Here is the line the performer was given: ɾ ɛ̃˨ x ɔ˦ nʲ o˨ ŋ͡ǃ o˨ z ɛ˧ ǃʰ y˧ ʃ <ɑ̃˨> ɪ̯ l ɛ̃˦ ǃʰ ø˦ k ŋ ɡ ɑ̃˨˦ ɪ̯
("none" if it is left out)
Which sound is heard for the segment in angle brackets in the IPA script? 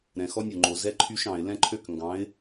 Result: ɑ̃˨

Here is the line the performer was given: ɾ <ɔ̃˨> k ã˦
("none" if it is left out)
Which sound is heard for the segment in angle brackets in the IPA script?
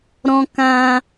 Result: ɔ̃˦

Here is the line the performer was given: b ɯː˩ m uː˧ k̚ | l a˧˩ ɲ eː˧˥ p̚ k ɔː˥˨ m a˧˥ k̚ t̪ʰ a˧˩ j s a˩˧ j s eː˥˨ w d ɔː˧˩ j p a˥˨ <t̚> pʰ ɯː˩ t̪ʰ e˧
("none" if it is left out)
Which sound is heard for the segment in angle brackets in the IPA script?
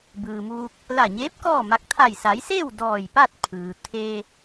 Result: t̚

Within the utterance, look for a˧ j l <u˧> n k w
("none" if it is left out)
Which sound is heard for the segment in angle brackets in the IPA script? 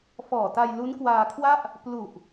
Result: u˦˥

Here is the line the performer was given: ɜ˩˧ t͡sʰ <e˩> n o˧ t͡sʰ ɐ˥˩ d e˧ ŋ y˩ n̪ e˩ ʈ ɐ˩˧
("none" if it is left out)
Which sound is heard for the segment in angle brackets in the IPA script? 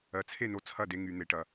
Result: e˥˩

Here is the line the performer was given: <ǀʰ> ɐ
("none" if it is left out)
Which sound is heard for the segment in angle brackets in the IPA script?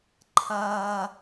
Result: ǃʰ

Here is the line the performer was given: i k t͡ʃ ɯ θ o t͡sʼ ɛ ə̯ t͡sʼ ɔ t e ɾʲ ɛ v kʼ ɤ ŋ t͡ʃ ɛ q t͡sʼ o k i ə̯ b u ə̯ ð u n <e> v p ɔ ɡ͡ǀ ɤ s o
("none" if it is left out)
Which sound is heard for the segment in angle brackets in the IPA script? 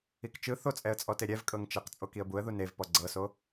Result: e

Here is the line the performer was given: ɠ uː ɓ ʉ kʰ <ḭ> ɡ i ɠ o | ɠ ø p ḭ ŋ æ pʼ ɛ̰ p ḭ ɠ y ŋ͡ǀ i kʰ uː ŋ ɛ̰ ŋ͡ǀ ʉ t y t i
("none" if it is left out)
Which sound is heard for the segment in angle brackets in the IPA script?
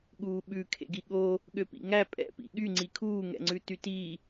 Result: ḛ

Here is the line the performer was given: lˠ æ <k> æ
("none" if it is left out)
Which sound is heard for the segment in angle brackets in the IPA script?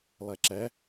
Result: ǁ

